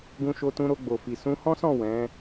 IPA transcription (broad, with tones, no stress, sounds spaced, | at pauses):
ɡ ũ˧ ʃ o˧ t ũ˧ ɾ o˧ ɡ͡b o˨ f i˨ s ũ˧ h ɔ̃˦ s ɔ̃˦˨ w ɛ̃˨˦